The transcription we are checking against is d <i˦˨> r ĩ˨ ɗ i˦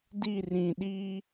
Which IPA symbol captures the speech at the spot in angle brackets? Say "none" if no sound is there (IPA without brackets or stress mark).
i˦˨